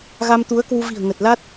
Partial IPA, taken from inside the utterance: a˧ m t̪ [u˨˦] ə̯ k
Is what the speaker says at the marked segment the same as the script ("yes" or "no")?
yes